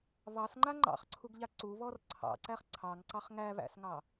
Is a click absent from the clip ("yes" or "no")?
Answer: no